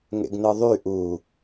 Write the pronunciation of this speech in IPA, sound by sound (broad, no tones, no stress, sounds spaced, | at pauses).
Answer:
ŋ ḛ ɡ n ɯ ðˤ y ʔ u